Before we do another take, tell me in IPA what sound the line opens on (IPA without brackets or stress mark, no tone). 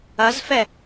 ɐ